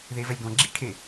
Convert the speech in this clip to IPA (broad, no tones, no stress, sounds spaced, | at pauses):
ð e v ɛ lʲ ɡ ɔ̃ ɡ͡ǁ i k ʈʰ e